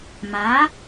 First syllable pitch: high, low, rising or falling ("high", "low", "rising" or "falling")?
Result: rising